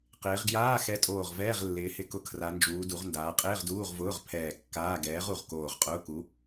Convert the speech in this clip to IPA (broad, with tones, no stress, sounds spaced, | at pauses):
q ɪː˩˧ ʁ ɡ j aː˧˥˧ x ɛ˨˥ tʼ oː˧˩ ʁ v ɛː˧˥˧ ʁ lː ɪː˩˧ h ɪ˧˩ k ʊ˧˩ kʰ r a˩˧ n d͡ʒ uː˩˧ d u˩˧ ʁ n d aː˩˧ qʼ ɪː˧˥˧ ʁ d uː˧˥˧ ʁ v ʊː˧˥˧ ʁ pʰ ɛː˧˩ kː aː˧˥˧ ɡ ɛː˨˥ ʁ u˩˧ ʁ k oː˧˩ ʁ qʼ ʊː˧˥˧ k u˨˥